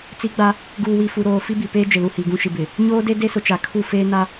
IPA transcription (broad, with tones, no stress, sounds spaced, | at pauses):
t͡s i˦ ɡ͡b a˦ | ɡ uː˨ w i˨ f u˨ ɾ oː˨ f i˦ b i˨ p eː˦ d͡ʒ ɪ˨ l u˨ h i˨ ɡ ũ˦ ʃ i˨ b ɪ˨ | ɲ oː˦ d e˦ d e˦ s ʊ˨ t͡ʃ a˨ kʰ u˦˨ f eː˦ n a˦